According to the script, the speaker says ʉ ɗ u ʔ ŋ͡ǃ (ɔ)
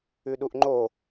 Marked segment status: incorrect: o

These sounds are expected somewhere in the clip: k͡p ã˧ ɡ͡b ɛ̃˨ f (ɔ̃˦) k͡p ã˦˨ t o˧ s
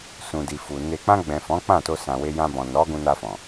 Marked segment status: incorrect: ɔ̃˨˦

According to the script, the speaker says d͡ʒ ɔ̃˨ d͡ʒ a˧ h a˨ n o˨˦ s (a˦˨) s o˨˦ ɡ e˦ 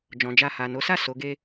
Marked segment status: correct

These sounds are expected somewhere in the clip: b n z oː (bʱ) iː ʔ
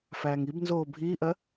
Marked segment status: correct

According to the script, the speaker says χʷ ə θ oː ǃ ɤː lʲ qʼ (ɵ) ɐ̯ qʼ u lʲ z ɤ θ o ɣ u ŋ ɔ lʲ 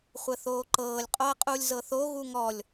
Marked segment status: incorrect: o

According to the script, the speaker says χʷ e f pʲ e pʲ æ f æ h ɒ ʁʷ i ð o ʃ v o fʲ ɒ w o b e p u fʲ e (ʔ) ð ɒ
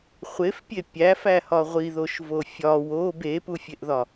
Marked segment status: correct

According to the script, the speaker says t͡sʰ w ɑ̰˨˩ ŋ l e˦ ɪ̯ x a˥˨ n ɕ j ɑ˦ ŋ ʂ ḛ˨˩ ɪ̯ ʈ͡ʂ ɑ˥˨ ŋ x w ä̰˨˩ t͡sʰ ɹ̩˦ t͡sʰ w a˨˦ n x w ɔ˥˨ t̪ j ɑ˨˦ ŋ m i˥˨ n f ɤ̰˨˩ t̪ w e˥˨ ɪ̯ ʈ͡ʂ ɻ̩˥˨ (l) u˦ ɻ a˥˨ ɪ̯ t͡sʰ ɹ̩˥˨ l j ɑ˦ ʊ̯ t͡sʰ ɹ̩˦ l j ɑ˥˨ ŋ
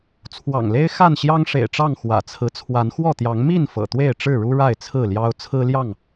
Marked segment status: incorrect: ɻ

